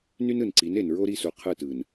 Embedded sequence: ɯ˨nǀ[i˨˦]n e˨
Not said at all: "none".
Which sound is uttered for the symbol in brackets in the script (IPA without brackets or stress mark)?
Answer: i˨˦